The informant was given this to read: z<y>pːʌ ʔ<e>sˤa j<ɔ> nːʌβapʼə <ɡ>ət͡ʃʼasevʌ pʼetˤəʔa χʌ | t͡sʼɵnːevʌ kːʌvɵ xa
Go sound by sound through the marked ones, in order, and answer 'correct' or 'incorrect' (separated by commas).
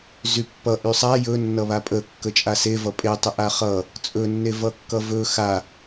correct, incorrect, incorrect, incorrect